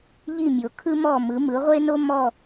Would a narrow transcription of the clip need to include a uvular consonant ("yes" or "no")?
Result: yes